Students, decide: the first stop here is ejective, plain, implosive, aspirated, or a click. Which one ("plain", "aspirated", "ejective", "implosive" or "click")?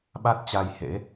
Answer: implosive